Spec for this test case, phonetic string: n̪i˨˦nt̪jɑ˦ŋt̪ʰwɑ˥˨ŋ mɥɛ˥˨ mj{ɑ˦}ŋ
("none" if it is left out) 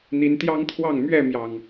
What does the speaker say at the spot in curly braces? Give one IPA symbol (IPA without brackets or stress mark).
ɑ˨˩